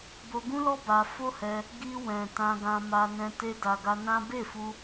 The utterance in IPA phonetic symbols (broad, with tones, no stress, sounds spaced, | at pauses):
b o˧ ɡ ũ˦ l ɔ˦ b a˧ f o˦ h ɛ˧ | ɡ i˧ w ɛ̃˨ t ã˧ ɡ ã˧ m a˧ n ɛ̃˧ t e˧ d a˨ ɡ a˧ n ã˦ b e˦˨ f u˧